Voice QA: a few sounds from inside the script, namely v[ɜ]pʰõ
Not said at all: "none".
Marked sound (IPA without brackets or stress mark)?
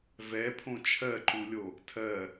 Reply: ɛ